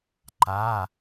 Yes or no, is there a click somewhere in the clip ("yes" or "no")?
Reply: yes